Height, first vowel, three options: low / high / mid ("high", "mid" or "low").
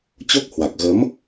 mid